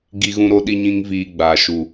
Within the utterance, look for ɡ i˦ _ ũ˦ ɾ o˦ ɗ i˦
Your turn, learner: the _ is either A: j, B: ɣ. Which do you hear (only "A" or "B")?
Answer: B